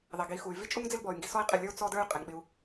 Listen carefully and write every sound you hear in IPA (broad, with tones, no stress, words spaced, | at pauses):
ðˤi˨ɡi˨˦xu˨y̯ vi˦t͡ʃʼu˦ŋd͡zɪ˦lbɔ˨y̯ ŋɡi˨sɔ˦i̯qʼɪ˦˨lʲə˞˦u̯ t͡sɔ˦də˞˦y̯ qʼe˨ŋɓɪ˧u̯